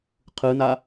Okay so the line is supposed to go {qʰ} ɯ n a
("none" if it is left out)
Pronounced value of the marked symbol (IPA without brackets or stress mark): qʰ